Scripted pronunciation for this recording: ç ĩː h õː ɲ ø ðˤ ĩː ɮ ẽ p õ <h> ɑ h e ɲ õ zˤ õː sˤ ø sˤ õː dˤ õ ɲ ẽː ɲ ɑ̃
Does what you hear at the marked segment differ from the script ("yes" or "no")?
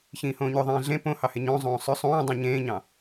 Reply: no